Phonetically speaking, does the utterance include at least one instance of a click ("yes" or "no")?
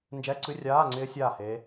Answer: yes